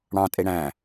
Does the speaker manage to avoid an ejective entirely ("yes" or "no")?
no